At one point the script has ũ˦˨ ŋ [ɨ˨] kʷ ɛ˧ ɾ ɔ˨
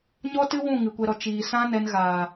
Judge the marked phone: correct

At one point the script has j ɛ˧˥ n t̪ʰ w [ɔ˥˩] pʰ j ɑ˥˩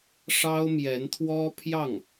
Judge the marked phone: incorrect: ɔ˥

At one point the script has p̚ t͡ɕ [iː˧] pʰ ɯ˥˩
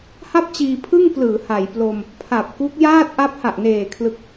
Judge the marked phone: correct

